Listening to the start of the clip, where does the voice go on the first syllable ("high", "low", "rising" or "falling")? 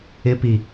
high